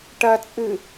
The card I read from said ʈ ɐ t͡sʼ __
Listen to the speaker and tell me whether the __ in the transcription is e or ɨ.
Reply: ɨ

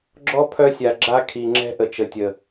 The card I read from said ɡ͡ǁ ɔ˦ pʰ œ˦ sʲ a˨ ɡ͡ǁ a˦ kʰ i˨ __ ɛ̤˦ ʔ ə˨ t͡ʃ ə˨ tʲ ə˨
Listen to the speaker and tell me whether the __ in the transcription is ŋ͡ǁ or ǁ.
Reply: ŋ͡ǁ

